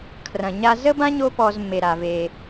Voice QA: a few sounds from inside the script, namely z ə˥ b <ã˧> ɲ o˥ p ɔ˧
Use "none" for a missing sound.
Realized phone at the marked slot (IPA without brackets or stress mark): ã˥